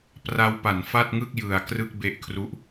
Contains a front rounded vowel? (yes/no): no